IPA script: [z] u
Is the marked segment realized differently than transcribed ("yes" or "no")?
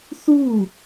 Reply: yes